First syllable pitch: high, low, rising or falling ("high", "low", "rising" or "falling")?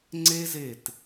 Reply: high